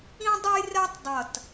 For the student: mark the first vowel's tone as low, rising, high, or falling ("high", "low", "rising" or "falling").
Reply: high